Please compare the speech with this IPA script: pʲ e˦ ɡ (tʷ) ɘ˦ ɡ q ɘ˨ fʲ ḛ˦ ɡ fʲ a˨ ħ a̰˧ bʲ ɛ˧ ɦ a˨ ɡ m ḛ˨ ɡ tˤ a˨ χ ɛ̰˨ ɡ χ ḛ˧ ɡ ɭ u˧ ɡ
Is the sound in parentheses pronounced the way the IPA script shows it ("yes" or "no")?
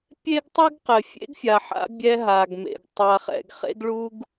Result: no